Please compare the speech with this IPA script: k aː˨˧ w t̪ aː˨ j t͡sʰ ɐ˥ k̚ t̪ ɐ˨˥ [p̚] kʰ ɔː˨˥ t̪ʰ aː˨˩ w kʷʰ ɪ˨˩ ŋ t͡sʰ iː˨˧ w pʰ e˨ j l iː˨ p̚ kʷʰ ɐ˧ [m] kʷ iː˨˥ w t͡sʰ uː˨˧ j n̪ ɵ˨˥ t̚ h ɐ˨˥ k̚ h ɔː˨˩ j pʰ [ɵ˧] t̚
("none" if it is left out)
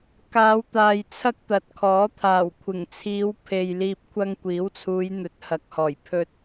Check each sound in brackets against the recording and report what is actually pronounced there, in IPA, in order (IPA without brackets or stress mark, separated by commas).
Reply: t̚, ŋ, ɵ˧